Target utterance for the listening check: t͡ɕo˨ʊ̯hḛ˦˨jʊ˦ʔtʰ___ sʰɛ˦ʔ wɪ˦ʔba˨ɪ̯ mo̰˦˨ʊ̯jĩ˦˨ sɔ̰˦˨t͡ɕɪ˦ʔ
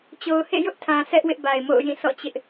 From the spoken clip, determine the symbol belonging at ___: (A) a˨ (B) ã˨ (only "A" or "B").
B